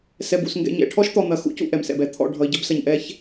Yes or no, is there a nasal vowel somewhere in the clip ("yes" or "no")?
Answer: no